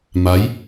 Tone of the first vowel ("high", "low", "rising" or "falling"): rising